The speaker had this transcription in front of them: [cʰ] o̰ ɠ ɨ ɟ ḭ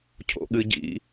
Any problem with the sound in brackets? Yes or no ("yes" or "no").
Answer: no